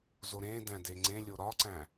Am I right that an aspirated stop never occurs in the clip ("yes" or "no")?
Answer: yes